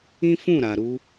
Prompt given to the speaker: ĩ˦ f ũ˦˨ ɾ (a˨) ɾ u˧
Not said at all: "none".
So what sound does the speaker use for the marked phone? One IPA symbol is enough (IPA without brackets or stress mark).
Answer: a˨